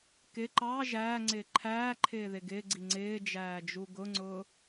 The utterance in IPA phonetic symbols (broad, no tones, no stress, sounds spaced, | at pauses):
k ɪ ǃ ɑ ʒ æː ŋ͡ǀ ɪː ǃʰ æː ǃʰ ɪː ð ɪ ɡ ɪː ɡ͡ǀ i ŋ͡ǀ ɪː d͡ʒ æː d͡ʒ u ɡ ʊ ŋ͡ǀ ʊː